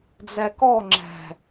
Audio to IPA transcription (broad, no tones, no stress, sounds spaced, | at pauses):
d͡z ɛ k ɔ ŋ͡ǁ ɛ̤